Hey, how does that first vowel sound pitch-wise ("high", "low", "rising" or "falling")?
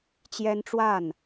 high